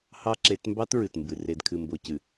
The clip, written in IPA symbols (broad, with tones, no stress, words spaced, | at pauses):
hɑ˦ ǁe˨˦tmbɑ˦t ɹɨ˨tmbɨ˨ re˨dkʰɨ˨ mbo˨cɨ˨